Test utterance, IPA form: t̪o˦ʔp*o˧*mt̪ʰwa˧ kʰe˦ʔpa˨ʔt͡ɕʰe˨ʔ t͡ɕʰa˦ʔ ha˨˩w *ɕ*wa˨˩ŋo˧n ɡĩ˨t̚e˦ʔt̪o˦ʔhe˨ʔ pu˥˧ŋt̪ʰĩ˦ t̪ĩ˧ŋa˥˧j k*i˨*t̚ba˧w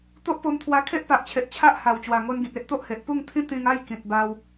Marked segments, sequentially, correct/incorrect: correct, incorrect, incorrect

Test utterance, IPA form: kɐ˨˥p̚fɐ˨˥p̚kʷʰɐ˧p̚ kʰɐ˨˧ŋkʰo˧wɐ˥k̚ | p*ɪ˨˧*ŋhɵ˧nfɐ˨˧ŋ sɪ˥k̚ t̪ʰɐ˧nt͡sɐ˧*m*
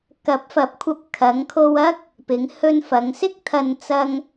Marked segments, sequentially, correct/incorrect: correct, incorrect

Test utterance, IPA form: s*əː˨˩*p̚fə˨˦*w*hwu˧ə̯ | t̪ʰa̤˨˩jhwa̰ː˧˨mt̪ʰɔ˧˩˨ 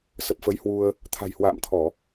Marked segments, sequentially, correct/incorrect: incorrect, incorrect

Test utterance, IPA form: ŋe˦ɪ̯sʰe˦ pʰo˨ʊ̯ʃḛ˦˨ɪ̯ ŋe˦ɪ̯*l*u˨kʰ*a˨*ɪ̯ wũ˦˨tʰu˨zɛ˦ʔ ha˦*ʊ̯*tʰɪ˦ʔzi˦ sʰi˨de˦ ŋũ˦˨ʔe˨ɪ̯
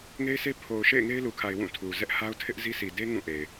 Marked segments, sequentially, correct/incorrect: correct, correct, correct

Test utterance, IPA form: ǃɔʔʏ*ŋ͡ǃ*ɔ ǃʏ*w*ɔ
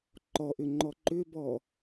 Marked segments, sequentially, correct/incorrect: correct, incorrect

